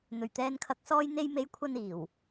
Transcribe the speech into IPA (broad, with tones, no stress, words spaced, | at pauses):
n̪ɵ˨˩ɥt̪ɛː˨nkʰɐ˨k̚ sɔː˧j n̪e˧jme˨˧j kʷʰɐ˧n iː˨˩w